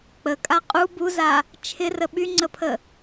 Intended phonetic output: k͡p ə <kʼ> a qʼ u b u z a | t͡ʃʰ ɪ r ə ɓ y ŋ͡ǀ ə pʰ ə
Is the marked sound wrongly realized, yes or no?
no